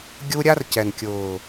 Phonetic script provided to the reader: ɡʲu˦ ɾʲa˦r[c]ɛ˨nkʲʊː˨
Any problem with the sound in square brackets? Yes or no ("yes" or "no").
no